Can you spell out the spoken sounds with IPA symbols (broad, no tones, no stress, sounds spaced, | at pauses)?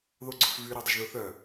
ð o ɡ͡ǀ ʊ f v y ɾ œ dˤ ɪ ʒ ð ʊ θ œ